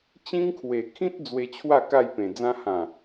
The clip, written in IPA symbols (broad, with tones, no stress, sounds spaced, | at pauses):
t͡ɕ ĩ˦ ŋ kʰ w e˨˩ kʰ ĩ˦ t̚ d͡z w e˧ t͡ɕʰ w a˥˧ k a˥˧ j p ẽ˨˩ d͡z ã˧ h ã˨˩